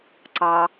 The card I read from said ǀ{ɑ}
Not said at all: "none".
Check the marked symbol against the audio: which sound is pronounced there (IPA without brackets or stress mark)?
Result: ɑ